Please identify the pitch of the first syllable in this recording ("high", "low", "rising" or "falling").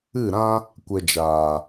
falling